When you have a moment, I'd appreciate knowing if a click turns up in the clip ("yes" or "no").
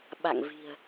no